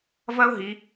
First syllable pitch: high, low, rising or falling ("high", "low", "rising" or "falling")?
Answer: high